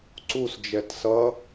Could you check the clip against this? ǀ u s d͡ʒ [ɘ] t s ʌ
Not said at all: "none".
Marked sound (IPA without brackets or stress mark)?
ɛ